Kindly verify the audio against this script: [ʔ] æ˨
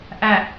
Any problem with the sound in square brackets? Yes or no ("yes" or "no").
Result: no